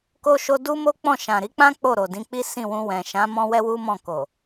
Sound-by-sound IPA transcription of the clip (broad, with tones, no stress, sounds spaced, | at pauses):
k o˧ ʃ o˧ d u˦ m o˦ k͡p ɔ̃˦˨ ʃ ã˨ ɾ i˨˦ k͡p ã˦ k͡p o˦˨ ɾ o˨ d ĩ˨˦ k͡p i˦ s ĩ˦˨ w ũ˧ w ɛ̃˨ ʃ ã˨˦ m ɔ̃˧ w ɛ˦ w u˦ m ɔ̃˦˨ k o˨